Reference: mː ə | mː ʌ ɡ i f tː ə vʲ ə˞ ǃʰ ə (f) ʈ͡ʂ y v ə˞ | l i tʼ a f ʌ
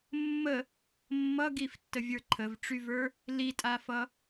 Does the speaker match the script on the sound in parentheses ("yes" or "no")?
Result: no